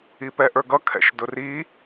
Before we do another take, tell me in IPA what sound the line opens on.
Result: i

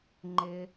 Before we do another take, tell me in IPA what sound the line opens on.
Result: ŋ͡ǃ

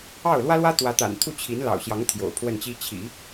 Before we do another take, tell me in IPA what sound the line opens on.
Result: ɑ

